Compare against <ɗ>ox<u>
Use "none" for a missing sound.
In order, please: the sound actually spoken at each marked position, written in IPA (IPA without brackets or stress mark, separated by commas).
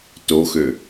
t, ø